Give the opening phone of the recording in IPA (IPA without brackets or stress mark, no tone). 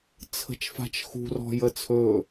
t͡sʰ